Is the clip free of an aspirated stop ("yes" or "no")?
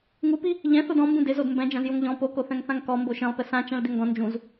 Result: yes